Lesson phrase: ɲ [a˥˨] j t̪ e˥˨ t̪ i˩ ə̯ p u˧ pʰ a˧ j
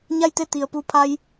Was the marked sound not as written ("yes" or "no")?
no